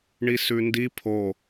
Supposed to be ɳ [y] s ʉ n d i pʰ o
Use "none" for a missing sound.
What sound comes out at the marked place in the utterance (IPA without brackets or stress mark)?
i